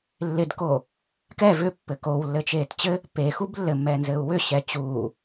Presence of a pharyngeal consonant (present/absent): absent